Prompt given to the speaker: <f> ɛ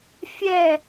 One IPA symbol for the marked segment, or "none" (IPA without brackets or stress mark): fʲ